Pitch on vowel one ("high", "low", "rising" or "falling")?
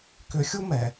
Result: low